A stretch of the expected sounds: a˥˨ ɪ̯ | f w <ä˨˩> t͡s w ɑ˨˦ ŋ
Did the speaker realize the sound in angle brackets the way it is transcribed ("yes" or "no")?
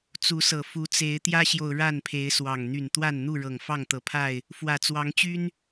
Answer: yes